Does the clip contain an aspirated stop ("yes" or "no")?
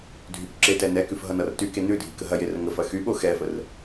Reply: no